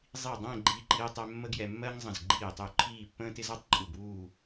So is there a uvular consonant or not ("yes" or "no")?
no